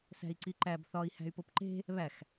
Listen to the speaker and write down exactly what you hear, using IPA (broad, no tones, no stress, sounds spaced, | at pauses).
s æ̤ i̯ ǀ i ǃ æ b θ ɒ i̯ h æ̤ y̯ p o p ǃ e̤ | β æ x